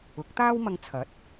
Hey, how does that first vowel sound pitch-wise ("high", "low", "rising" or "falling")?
rising